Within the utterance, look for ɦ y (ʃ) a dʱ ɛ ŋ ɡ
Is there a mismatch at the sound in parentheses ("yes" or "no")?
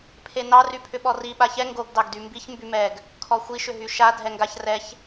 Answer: no